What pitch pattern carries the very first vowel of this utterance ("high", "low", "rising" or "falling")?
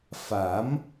rising